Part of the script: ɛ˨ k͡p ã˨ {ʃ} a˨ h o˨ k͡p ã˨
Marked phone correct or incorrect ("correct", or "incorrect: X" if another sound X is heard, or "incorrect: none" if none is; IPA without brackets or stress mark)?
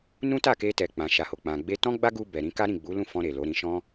correct